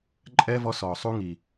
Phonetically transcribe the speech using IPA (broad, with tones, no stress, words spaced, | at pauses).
ǃʼɛː˥vɔ˦sɔː˨ sˤu˦ŋi˨